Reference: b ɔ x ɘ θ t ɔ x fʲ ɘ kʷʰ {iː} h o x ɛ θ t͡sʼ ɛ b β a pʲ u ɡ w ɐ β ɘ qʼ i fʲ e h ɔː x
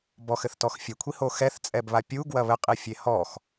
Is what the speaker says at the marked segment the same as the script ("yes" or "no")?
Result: no